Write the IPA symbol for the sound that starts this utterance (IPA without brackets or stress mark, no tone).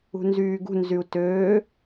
ṳ